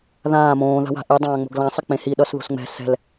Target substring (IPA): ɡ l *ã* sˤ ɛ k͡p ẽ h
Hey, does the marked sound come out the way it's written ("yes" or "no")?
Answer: yes